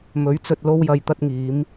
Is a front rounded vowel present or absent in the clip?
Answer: absent